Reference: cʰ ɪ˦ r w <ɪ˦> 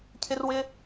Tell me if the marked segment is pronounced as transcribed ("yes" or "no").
yes